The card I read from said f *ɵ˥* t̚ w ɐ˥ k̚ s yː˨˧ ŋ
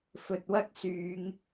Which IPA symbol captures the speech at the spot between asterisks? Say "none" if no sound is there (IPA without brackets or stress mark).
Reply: ɵ˨